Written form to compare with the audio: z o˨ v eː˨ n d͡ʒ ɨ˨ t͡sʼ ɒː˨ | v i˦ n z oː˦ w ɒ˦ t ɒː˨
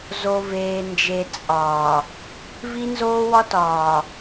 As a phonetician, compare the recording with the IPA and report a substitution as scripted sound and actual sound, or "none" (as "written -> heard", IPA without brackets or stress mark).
ɨ˨ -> e˨